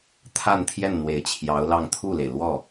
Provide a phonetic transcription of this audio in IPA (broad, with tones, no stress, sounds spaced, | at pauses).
t̪ʰ a˥˧ n t̪ʰ j ɛ˥˩ n n̪ w e˨˩ ɪ̯ t͡ɕʰ j ɑ˧˥ ʊ̯ l ɑ˥˧ ŋ t̪ʰ u˥˩ l e˩ ɪ̯ l w ɔ˥˩